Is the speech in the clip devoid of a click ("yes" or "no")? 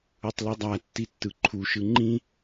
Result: no